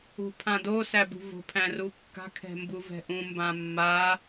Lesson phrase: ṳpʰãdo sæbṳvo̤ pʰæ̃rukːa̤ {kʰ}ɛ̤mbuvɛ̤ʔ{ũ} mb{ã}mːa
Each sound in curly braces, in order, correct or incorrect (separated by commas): correct, correct, correct